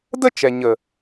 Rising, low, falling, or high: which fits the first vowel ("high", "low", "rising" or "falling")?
high